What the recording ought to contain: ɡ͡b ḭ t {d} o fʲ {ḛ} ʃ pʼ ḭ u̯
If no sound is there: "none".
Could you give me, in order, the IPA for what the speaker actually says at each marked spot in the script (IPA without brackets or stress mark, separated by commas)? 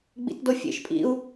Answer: d, ḛ